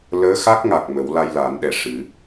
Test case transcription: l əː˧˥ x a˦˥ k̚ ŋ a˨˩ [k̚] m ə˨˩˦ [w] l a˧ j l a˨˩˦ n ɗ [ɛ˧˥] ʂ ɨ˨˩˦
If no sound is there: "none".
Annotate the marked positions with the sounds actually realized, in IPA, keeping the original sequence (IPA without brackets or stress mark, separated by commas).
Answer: k̚, w, ɛ˨˩